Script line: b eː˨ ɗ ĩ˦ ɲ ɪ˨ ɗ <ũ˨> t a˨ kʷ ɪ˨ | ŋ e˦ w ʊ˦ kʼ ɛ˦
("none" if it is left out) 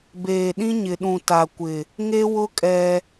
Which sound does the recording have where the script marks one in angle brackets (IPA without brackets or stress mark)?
ũ˨